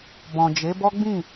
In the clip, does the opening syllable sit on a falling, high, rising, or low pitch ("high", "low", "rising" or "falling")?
low